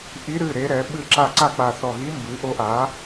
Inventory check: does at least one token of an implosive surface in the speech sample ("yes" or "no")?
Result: yes